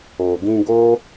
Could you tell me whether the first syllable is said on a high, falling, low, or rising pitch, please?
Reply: low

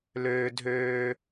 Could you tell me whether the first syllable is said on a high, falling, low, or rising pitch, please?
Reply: high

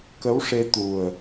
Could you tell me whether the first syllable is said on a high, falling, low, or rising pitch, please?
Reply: rising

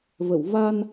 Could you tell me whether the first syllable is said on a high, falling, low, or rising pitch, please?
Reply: low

